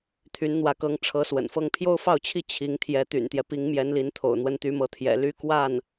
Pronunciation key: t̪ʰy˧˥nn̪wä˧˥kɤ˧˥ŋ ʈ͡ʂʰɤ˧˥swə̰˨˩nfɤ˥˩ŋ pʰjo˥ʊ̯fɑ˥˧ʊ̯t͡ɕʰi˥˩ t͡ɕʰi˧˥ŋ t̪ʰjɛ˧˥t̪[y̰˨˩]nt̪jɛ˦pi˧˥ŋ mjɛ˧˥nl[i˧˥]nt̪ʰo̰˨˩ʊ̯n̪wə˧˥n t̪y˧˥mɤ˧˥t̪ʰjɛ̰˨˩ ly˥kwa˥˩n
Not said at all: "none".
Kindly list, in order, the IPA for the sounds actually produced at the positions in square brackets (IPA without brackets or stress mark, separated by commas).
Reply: y̰˨˩, i˧˥